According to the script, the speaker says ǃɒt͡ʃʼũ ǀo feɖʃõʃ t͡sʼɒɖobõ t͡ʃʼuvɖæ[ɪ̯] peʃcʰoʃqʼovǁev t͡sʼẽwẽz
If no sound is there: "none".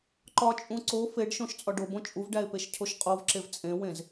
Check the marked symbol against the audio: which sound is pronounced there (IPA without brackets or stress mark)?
ɪ̯